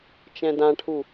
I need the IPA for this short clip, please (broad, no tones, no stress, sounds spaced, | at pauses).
t͡ʃ ɛ̃ d ã ʈʰ u